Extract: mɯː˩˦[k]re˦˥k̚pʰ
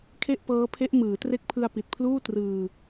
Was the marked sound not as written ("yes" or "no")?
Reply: yes